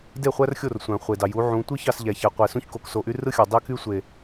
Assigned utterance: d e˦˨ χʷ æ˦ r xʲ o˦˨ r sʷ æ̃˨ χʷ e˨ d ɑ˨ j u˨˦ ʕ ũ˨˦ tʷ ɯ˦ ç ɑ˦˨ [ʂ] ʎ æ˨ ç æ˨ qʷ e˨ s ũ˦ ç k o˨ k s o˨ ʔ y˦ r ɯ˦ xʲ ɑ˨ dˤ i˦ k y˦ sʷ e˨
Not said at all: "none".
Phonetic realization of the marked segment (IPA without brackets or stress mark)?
s